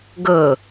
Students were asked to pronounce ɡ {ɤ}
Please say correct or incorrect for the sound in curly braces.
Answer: correct